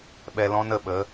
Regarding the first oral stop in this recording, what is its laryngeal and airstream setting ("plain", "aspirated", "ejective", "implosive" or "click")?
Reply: implosive